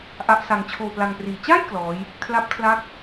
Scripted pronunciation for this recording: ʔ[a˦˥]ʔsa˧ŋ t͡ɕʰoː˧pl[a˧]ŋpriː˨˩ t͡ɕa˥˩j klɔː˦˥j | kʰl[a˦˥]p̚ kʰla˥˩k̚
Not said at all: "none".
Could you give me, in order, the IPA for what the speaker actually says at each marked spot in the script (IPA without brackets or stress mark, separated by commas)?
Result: a˦˥, a˧, a˦˥